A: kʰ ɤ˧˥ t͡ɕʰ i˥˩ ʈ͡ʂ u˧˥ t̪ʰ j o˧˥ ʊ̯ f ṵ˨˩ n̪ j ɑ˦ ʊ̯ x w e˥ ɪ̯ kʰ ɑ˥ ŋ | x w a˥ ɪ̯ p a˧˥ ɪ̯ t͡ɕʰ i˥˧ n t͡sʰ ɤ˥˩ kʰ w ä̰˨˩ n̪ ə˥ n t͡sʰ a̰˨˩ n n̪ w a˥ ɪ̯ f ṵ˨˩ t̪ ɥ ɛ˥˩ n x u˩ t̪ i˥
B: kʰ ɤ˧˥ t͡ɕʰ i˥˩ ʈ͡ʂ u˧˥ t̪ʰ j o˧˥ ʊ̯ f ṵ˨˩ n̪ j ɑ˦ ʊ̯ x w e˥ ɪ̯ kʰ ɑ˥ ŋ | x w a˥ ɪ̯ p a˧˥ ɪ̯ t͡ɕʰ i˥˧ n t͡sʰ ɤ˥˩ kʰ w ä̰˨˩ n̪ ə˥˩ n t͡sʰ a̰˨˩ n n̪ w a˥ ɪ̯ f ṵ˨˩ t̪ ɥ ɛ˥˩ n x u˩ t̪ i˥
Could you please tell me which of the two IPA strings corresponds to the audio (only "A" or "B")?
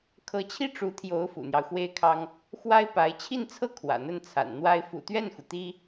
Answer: B